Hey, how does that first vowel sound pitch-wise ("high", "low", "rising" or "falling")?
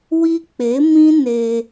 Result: high